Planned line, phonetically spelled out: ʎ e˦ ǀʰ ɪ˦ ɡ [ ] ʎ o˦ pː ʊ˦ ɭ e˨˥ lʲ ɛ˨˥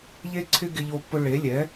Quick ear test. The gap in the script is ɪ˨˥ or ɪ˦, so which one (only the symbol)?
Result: ɪ˦